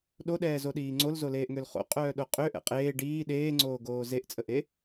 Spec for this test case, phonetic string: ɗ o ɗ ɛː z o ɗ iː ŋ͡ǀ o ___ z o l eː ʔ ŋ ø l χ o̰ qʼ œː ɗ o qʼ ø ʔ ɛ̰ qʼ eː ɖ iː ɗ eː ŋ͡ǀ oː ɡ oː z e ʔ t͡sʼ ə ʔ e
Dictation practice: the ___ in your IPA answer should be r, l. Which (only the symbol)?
l